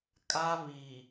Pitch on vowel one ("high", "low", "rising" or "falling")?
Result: high